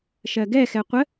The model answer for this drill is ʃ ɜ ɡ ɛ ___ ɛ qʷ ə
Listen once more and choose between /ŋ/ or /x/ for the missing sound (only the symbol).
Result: x